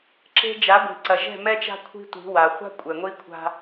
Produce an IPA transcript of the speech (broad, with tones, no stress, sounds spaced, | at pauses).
ǁ e̤˦ d͡ʒ a˨˦ ɡʷ i̤˨ ǀ ɐ˨ ʒ ɛ̤˦˨ m ɛ˦ t͡ʃ a̤˦ kʷʰ i̤˦ tʷ i̤˨˦ w a˨ χʷ a̤˦ kʷʼ ɛ˨ ŋʷ i˦ kʷʰ a̤˦